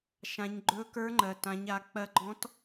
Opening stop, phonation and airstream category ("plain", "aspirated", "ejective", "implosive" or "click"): click